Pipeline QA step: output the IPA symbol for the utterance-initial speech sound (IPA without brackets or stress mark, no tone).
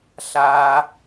ɬ